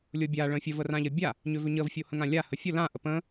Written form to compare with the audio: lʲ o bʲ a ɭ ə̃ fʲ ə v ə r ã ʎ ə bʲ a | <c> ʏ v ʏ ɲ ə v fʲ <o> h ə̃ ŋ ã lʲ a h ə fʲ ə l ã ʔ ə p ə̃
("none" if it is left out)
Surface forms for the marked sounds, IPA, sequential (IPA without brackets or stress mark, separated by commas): ɲ, o